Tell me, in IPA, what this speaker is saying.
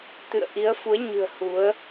t̪ɨ̰˧˨ə̯ʔi˨˦ə̯fu˨˦ə̯ɲɨ̤˨˩ə̯ hu˨˦ə̯

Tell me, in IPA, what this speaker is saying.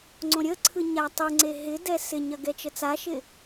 ŋ͡ǀõɾʲəǀʰɯ ɲatˤɯŋ͡ǀe ɦɪdɛ sɪɲɐ ɡɛt͡ʃət͡saʃɪ

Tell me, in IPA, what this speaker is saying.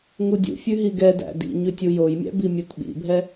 ŋudʲṵfʲʉ ɦiɡɛdæ̰ dḭ ɲʉtʲujojmʲæ̰ bimʲutɓḭbʱɛ

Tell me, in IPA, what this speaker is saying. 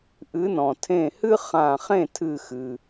ʔɨ˨˦nɔ̃˩tʰẽ˧˩hɨ˥ χã˧˩χẽ˥˨tʰɨ˧˩xɨ˩

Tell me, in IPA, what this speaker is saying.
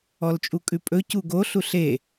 ɔlt͡ʃʼukʼʉpʼɵ cuɡo ɬuɬe

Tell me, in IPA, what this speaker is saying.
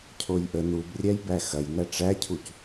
cʰojʔə nubrʲæj bæxɐjnæ ʈ͡ʂæcʰuc

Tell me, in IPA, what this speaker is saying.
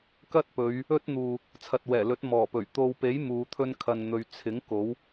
kɐ˥t̚pɵ˨˧ɥ | ɵ˥t̚n̪uː˨ | t͡sʰɐ˨t̚wɛː˨˩lɵ˨˥t̚ mɔː˨˩pɵ˨˩ɥ t̪o˨wpe˨˥j muː˨˧t̪ʰɵ˥nkʰɐ˨nn̪ɵ˨˧ɥ t͡sʰɪ˨˥ŋko˨˥w

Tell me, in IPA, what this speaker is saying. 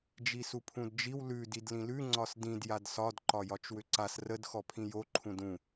d͡ʒisupʰũdd͡ʒiw lʉ didlĩlʉ ŋ͡ǀɒsdĩd jadsɒd ǃɒjɒt͡ʃwʏǀas rəd xɔpʰĩjo ǃʰũdũ

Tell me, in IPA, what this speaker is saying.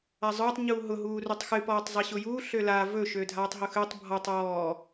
azˤʊːtˤ ɲuːɦʊ ɦuːrutˤxɨ pɔːtˤzˤiɕʊjuː ɬøla vɵ ʃødʱaːtˤɦʊxøtˤ bʱɔtˤ ɔː

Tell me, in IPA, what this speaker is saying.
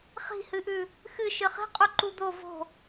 χi̤hɨʔʉ | xɨ ʃɨχi̤qʼuǃu d̪o vo̤

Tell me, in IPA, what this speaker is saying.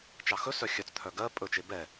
t͡ʃɑxɵsœ xʲœt͡st̪ʰœ ɡɜ pʼɵt͡ʃe bɛ

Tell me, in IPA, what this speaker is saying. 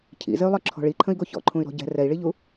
cʰḭzɘy̯lˠɯǁʰɔ̤ ɭiǃʰə̃i̯ɡo çɔ̰ǃʰũy̯ɾɔ̤ ɟɛ̤ rɛi̯ɭiʎu

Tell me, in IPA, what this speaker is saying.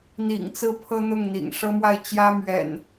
n̪ḭ˨˩ŋt͡sɹ̩˥˨ pʰɤ˦n̪ʊ˥˨ŋ n̪ḭ˨˩ŋʂɤ˦mwa˥˨ɪ̯ t͡ɕjä˦ mɥɛ̰˨˩n

